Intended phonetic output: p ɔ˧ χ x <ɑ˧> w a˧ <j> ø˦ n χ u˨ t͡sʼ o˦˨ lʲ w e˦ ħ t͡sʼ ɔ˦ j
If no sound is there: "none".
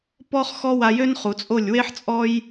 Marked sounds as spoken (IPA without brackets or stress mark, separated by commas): ɔ˧, j